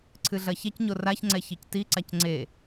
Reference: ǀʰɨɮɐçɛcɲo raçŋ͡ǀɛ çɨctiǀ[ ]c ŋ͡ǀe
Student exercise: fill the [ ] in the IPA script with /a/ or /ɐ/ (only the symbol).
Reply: a